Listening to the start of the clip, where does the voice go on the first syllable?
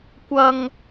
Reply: high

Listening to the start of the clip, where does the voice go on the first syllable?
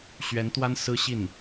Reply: rising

